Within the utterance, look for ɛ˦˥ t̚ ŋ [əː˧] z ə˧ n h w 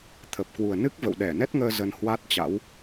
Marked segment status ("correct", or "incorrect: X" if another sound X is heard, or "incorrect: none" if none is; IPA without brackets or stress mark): correct